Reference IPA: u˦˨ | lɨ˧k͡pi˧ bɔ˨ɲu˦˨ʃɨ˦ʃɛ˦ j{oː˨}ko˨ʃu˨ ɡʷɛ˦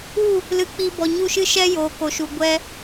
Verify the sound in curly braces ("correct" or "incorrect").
correct